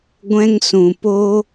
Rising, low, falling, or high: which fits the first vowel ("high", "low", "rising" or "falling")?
high